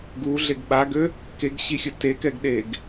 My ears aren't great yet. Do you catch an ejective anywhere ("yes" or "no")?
no